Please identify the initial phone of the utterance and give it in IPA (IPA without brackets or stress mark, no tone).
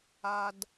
a